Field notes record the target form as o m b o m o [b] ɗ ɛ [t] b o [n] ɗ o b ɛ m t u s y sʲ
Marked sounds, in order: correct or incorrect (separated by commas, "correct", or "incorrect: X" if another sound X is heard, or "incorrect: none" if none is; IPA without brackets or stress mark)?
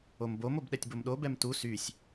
correct, incorrect: tʲ, incorrect: m